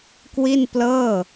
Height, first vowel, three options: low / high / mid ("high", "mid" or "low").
high